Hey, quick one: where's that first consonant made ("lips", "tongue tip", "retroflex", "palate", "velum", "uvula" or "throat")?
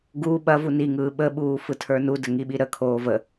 velum